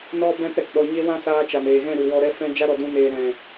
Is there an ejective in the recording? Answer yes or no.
no